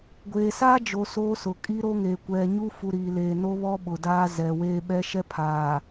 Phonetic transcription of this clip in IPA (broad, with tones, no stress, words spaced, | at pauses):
ɡʷeː˨saː˦d͡ʒo˨ so˦sʊ˨ kʼi˦ɾo˦ŋeː˨ kʷɛ˨ɲu˦fu˨ ɾi˨le˨ no˦βɔ˦ɓʊ˨ daː˦zɛ˨weː˦ ɓɛ˦ʃɛ˦pʰaː˨